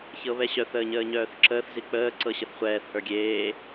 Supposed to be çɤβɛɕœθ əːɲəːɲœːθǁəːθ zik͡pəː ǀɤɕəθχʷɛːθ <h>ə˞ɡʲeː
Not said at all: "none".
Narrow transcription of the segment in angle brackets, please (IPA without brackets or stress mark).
h